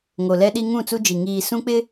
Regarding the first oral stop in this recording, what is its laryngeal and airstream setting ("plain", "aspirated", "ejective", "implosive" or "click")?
implosive